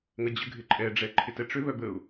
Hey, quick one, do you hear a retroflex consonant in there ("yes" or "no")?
yes